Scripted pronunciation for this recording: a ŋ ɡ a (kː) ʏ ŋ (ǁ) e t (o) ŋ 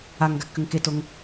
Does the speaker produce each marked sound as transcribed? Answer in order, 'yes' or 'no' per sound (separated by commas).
yes, no, yes